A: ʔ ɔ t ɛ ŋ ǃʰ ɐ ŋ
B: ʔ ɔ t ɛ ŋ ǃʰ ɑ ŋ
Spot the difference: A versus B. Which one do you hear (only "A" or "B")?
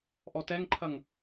A